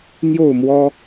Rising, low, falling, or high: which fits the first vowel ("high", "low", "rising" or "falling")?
falling